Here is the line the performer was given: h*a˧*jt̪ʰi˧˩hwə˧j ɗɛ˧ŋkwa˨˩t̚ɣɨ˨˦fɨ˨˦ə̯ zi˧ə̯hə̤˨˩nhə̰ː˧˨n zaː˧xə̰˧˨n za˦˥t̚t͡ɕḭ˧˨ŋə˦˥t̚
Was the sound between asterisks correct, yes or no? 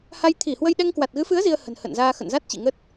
yes